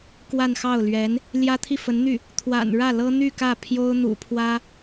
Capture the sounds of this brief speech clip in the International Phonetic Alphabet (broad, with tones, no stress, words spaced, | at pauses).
kwa˥˧nxɑ˥˩ʊ̯lɥɛ˧˥n | ljä˥t̪ʰi˥˩fə˧˥nn̪y˥˩ | t̪ʰwa̰˨˩n ɻä˥˩lɤ˥n̪y˥˧ kä˥˩ pʰjo˥ʊ̯n̪ṵ˨˩pʰwä˥